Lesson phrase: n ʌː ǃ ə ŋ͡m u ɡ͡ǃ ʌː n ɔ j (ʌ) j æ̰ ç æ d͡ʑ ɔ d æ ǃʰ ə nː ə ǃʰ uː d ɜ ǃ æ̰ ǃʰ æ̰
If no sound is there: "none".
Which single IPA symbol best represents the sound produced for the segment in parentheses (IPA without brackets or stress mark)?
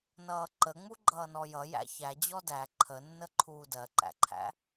ʌ